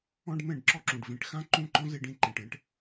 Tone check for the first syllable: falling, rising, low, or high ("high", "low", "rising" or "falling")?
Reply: high